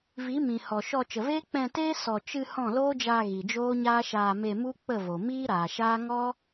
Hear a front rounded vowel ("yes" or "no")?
no